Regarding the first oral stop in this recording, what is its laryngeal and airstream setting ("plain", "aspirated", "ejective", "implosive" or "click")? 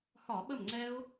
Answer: implosive